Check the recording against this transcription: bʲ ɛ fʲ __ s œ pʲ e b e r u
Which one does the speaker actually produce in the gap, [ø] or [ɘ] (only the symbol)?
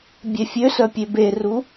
ø